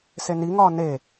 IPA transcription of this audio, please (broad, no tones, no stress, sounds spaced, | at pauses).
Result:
s e n i ŋ ɒː n e